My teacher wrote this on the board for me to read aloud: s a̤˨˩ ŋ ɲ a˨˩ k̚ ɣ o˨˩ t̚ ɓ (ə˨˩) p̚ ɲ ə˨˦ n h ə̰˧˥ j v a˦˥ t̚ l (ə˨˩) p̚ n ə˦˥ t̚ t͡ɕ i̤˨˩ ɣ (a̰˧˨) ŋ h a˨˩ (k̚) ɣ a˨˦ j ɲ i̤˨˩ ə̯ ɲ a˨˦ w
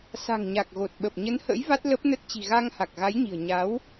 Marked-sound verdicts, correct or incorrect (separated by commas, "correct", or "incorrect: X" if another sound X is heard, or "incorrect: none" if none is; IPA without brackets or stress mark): correct, incorrect: ə˦˥, incorrect: a˧, correct